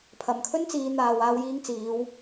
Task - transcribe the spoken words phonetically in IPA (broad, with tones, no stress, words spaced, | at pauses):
pʰɐ˨mkʰɵ˥nt͡siː˨˧n̪aː˨w aː˧wjiː˧ŋ t͡siː˨˧w